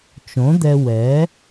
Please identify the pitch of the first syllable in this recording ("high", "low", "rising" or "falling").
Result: rising